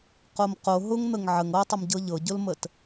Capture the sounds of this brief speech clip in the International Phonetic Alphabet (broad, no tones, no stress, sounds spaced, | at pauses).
q o m q o ɦ ʊ ŋ n̪ ə ŋ ʕ ə ŋ ɤ tˤ ʊ m ɟ ɤ ʎ ɤ ɟ ʊ l m ə t